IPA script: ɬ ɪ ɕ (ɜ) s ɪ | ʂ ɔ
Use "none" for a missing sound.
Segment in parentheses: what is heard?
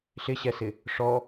ɛ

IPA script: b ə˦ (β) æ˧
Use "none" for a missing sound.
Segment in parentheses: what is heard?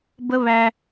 β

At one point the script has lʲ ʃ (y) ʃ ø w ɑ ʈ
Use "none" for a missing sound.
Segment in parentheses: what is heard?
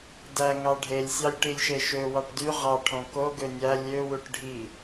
e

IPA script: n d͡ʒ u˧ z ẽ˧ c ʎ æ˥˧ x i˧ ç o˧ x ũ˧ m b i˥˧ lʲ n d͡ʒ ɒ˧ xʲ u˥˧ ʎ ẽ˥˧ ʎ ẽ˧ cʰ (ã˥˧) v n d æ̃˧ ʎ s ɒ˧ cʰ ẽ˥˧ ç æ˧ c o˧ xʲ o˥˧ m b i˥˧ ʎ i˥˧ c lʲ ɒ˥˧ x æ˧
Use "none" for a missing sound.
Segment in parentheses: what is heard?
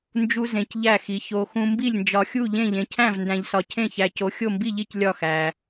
æ̃˥˧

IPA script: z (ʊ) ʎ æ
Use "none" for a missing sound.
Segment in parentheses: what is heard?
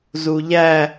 u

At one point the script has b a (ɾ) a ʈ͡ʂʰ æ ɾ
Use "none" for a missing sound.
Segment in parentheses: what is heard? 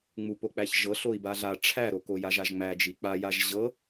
ɮ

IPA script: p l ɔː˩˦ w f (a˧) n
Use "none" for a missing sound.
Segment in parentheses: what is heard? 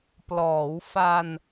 a˧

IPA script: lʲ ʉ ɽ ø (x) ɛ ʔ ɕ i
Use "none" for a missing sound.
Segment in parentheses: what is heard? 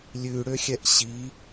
xʲ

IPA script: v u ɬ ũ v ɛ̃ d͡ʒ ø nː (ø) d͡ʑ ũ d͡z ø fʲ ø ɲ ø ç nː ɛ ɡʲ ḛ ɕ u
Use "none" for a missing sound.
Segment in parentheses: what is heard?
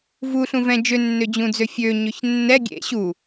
ø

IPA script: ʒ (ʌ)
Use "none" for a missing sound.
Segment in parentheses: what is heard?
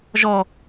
ɔ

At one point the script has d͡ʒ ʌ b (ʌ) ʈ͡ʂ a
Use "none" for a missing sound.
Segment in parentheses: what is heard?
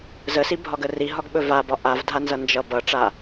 ʌ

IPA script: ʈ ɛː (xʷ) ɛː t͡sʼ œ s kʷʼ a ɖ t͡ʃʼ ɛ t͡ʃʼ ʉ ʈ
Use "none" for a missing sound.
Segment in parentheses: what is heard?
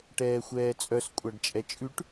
xʷ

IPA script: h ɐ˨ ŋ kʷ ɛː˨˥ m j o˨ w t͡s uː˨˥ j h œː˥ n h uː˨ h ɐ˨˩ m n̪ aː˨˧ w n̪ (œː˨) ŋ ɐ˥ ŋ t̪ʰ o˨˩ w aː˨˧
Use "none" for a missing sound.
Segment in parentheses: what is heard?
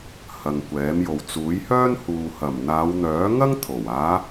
œː˨˥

